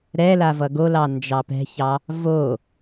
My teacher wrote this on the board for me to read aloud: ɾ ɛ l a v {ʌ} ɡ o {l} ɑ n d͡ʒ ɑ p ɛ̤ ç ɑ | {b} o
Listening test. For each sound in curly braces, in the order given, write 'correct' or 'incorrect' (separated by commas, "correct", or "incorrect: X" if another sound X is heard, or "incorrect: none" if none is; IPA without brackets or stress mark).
correct, correct, incorrect: v